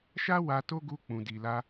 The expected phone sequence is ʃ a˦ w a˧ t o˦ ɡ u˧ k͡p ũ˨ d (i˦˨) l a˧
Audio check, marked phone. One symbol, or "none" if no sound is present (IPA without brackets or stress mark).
i˨